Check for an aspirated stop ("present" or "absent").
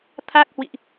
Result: present